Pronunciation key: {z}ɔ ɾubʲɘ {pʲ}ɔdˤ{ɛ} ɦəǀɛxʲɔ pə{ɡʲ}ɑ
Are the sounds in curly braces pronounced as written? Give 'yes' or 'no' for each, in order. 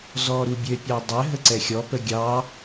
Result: yes, yes, no, yes

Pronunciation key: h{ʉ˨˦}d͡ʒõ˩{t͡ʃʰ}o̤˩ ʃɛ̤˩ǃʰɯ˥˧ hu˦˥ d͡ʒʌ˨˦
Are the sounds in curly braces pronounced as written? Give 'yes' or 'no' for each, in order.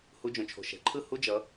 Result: no, yes

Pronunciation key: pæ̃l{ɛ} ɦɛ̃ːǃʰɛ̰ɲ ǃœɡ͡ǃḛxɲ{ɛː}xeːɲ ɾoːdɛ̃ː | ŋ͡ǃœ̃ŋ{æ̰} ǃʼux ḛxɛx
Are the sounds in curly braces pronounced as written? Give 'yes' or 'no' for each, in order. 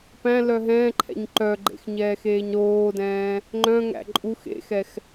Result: no, yes, yes

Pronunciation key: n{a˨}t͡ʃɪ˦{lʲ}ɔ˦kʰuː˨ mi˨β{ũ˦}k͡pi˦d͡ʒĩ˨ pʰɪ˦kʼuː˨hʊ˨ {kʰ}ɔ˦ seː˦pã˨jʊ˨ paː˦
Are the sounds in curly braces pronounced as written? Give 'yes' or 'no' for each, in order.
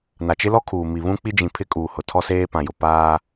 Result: yes, no, yes, no

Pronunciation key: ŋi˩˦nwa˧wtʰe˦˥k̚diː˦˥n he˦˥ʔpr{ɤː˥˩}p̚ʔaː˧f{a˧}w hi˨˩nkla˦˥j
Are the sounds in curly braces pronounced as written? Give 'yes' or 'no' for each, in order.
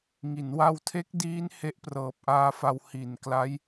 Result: no, yes

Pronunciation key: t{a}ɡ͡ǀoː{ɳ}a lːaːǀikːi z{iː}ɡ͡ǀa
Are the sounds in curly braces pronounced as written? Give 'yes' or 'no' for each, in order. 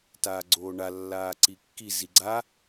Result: no, yes, no

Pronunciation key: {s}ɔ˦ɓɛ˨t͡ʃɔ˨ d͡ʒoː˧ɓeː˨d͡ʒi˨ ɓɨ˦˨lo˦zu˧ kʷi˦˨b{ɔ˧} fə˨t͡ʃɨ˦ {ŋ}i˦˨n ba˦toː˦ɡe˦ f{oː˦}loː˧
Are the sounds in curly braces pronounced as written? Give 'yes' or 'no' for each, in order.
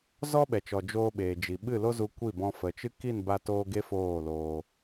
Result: no, no, no, no

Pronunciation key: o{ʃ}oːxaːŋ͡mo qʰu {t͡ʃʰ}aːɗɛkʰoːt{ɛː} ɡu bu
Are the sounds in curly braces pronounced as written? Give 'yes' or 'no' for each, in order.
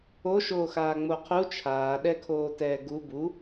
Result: yes, yes, yes

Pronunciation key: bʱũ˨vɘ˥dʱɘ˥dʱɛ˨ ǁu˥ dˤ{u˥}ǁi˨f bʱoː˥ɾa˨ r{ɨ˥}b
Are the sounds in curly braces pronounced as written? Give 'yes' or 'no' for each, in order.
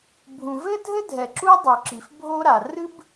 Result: no, yes

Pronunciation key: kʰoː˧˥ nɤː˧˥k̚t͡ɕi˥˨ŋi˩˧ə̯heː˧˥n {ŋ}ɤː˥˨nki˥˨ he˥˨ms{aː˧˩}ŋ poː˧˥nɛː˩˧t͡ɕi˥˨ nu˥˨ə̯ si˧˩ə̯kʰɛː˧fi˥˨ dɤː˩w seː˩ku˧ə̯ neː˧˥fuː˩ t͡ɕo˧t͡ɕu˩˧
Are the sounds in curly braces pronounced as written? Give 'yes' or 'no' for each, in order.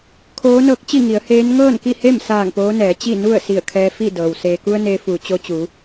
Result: yes, yes

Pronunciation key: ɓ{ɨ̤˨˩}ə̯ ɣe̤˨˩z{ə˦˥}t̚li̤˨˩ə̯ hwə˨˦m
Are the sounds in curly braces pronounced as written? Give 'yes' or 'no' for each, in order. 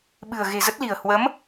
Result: yes, yes

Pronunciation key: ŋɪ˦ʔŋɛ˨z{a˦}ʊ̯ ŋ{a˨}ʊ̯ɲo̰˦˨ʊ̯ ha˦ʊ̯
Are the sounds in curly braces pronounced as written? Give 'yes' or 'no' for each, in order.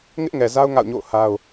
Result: yes, no

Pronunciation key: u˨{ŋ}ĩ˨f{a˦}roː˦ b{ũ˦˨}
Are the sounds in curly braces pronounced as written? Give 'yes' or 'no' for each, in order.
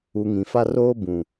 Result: yes, yes, no

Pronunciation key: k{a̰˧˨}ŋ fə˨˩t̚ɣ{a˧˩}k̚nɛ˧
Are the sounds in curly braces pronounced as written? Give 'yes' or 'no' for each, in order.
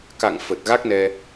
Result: yes, no

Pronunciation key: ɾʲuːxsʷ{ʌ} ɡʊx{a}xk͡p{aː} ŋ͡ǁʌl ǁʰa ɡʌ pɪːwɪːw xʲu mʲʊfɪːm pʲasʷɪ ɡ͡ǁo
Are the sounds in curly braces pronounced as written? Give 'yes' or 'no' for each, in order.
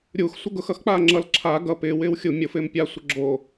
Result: no, no, yes

